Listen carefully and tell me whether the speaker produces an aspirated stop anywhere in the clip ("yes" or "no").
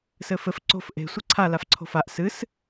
yes